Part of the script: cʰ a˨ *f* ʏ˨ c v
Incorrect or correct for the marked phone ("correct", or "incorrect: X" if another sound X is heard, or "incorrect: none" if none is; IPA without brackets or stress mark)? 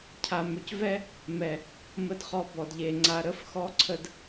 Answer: incorrect: m